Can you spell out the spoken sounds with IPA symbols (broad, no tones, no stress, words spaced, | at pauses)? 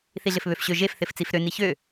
θiɮɪfβøfɕø ʒef θɪft͡sifɾø niçø